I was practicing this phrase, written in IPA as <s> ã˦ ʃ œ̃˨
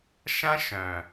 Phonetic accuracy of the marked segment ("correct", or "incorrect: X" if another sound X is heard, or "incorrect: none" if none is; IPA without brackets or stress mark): incorrect: ʃ